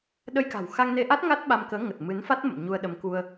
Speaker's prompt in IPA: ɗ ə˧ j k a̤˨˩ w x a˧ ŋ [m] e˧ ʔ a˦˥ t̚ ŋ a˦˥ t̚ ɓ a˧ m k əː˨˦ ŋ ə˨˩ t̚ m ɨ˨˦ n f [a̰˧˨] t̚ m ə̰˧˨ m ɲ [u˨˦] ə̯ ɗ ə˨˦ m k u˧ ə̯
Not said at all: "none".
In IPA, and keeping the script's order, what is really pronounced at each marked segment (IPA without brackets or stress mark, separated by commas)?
n, a˦˥, u˧